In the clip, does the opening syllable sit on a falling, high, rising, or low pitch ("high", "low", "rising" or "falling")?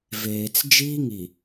low